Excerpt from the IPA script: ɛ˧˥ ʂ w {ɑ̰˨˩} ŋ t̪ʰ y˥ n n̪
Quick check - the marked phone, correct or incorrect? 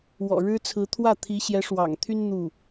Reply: correct